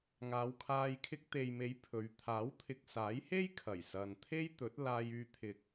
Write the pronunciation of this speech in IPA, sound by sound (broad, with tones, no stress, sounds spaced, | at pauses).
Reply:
ŋ aː˨˧ w kʰ aː˧ j kʰ ɪ˧ k̚ t̪ e˨ j m e˨˧ j pʰ ɵ˨˧ ɥ t̪ʰ aː˨˥ w t̪ʰ ɪ˨ k̚ s aː˨˥ j h e˥ j kʰ ɐ˨˩ j s ɐ˨ n t̪ʰ e˥ j t̪ ɵ˨˥ t̚ l aː˧ j yː˧ t̪ʰ ɪ˨ k̚